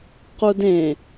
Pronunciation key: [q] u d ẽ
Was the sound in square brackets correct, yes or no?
yes